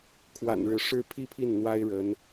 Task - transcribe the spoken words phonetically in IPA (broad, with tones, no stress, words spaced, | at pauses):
kʰwa̰˨˩nɻɻ̩˧˥ʂɻ̩˥˧ pʰi˥˧ pʰi˥˩n n̪wa˥ɪ̯ ɻə˧˥n